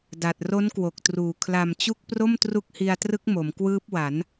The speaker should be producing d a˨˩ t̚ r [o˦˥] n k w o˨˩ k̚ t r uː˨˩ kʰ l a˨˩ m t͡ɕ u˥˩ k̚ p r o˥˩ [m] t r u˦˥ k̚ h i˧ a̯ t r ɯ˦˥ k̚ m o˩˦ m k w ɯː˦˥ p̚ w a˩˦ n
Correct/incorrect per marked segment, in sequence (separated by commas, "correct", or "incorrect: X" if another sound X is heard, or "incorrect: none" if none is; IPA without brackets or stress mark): correct, correct